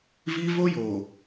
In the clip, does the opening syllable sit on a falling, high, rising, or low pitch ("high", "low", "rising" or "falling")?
high